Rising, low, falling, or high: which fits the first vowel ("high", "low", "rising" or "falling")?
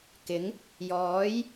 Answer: rising